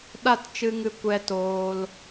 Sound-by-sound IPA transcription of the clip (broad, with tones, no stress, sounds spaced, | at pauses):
ɗ a˦˨ t t͡ʃ ɨ˧ ŋ ɨ˧ kʷ ɛ˧ t oː˧ l